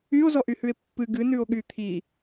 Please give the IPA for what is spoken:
y o̯ z ɔ ʔ y h ʉ e̯ pː ɨ ɡ ɨ n ʉ o̯ ɠ y t̪ʰ i

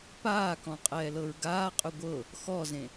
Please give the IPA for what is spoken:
p aː k ɔ̃ qʼ ɛː l ɤ ɹ ɡ aː qʼ ʉ ɡʷ ɤ | x ɔ z ẽ

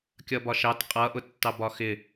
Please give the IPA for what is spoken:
kʲ ʌ b ɒ ʃ ɑ t qʼ ʌ ʔ ʊ tː ɑ b ɒ x ɪ

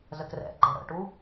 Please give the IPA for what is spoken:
z ə k r ɛ̰ ɡ͡ǃ ɛ ɽ ə̰ ʈ u

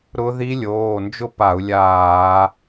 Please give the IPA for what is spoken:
ɾ ʊ˦˥ ð i˦˥ lʲ oː˩˧˩ n d͡ʒ ʊ˥˨ p a˧˩˧ u̯ lʲ aː˧˩˧

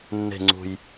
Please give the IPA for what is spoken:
nː e̤˨˩ ŋ͡ǀ ṳ˨˩ j

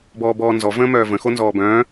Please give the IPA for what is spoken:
b ɔː b ɔː n z ɔ v ə̃ː m œː v ə̃ x o n z ɔː b œ̃ː

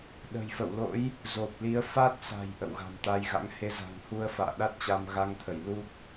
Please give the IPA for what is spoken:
ɗ ə̤˨˩ j f ə̰˧˨ w l o̰˧˥ j | z o˨˩ p̚ l i˨˦ ə̯ f a˦˥ t̚ s a̤˨˩ j ʔ ə̰˧˨ w ɣ a̤˨˩ m t̪ a˧ j ɣ a̰˧˥ ŋ h e˧ z a̤˨˩ ŋ h u˧ ə̯ f a̰ː˧˨ ɗ a˦˥ t̚ t͡ɕ a˧ m ɣ a˧ ŋ t̪ʰ ə˧˩ j l u˦˥ k̚

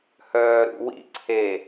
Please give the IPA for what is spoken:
h œː ɾ ṵ w ḭ ǀʰ e

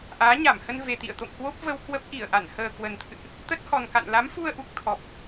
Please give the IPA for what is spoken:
ʔ aː˨˦ ɲ a˧˩ m h ə˧ n v e˨˩ t̪ ḭ˧˨ ə̯ t̪ o̰˧˨ ŋ k w o˦˥ p̚ v ə˧ w k w ə˦˥ p̚ ʔ i˧˩ ə̯ ʔ a˧˩ n h əː˨˩ k w ə˨˩ n t̪ʰ ɨ̰˧˨ ʔ | t̪ ə˦˥ t̚ h ɔ˨˩ n k a̰˧˨ n l a˨˦ m f u˧ ə̯ ʔ u˨˩ k̚ t̪ʰ ɔ˨˩ p̚

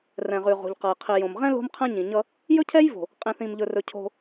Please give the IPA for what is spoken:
r ɛ̃˨ ʁ ʉ˨ ʁ o̤˨ ʎ q ʌ˨ j qʰ i˨ j õ˨ m ʁ ɛ̃˦ l o̤˦ m qʰ ɛ̃˦ ɲ ĩ˨ ɲ ʌ˦ | j ɵ˦ cʰ ɛ˦ j v o̤˨ | qʼ ĩ˨ θ ĩ˨ m ʎ ɵ˨ r ɵ˨ cʰ o̤˦

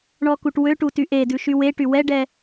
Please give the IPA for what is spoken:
ɳ ɔ k u ʈ w ø ʈ u t y ʔ e d ʉ ʃ y w e ʈ y w ɛ ɖ ɛ

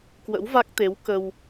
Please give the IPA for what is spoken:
k w ə̰˧˥ w v a˦˥ k̚ t̪ e˨˦ w k ə˧ w

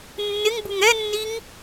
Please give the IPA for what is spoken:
nː ɪ ŋ b u ŋ ɛ nː i ŋ

